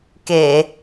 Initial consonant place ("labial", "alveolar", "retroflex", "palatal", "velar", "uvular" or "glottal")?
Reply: velar